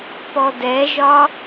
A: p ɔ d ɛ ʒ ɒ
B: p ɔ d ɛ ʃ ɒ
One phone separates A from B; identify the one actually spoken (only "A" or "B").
A